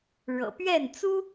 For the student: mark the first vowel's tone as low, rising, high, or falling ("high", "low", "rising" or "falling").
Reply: low